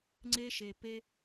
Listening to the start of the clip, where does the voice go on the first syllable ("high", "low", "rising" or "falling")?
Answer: high